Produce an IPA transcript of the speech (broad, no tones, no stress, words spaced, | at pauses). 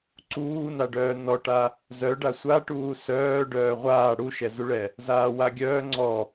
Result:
ǀuːnaɖœː nɔʈa | zœ ɖasʷaʈuː sœː ɖœːʁʷaː ɽuʃɛzuɭɛ | zaːwaɡʲœː ŋ͡ǀɔ